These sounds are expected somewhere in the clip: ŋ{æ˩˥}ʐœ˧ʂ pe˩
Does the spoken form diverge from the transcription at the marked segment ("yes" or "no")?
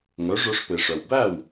yes